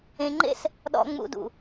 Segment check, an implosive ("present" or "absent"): present